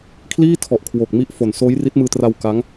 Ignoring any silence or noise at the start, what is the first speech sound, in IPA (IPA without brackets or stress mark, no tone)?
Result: kʰ